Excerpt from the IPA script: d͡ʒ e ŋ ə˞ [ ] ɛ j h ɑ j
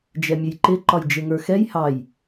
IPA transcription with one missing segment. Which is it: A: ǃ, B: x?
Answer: B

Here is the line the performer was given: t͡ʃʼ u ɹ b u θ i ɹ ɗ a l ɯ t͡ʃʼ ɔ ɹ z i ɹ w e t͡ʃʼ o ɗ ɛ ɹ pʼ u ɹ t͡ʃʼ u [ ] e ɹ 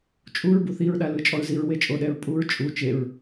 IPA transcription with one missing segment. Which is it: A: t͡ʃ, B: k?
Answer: A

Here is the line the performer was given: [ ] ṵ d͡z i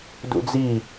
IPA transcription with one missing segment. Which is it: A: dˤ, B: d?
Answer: B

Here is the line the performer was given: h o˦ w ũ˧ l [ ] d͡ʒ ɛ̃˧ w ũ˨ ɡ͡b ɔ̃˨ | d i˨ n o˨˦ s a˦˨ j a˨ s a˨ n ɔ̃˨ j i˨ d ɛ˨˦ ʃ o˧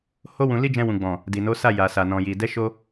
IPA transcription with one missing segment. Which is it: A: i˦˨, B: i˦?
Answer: B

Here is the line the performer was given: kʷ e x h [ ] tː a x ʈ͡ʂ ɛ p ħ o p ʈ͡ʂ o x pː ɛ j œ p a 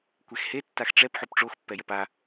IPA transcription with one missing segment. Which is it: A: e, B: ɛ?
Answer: A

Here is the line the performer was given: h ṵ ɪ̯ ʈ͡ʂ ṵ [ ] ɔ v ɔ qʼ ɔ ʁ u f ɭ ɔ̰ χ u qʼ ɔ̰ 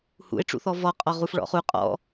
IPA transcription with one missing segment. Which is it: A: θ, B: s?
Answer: A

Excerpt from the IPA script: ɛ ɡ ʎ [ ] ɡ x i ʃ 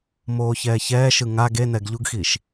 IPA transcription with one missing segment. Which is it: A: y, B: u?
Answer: B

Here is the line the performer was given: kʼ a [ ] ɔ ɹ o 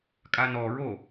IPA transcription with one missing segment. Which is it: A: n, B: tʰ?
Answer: A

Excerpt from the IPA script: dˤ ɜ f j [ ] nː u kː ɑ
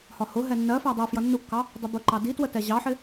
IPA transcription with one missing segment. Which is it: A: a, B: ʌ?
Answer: B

